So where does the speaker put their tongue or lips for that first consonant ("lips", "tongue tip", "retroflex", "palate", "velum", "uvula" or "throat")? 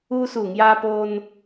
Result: tongue tip